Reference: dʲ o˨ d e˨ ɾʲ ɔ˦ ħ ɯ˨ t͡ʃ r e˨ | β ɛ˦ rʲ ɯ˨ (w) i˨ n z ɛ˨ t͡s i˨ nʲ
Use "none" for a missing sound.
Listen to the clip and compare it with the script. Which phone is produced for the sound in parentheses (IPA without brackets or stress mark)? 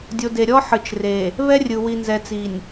w